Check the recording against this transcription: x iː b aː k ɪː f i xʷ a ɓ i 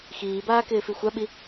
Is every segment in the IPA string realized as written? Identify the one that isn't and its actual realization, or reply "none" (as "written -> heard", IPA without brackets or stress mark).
none